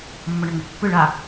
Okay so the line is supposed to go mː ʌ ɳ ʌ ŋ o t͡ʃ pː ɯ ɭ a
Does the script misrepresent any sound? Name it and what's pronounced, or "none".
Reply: none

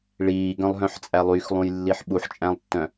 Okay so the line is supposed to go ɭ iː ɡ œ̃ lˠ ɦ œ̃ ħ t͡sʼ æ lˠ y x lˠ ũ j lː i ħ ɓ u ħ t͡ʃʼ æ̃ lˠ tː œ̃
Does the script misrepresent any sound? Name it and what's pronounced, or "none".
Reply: none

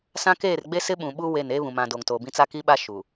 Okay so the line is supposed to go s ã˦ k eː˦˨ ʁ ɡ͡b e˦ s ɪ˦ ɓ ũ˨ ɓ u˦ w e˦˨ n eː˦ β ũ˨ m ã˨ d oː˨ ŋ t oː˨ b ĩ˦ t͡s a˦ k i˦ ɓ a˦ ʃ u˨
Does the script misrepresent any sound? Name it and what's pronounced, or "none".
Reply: ʁ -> r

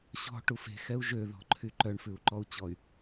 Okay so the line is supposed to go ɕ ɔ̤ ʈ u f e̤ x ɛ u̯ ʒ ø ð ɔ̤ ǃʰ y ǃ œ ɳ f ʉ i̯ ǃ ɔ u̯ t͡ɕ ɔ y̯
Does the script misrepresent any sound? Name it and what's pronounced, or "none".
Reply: i̯ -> u̯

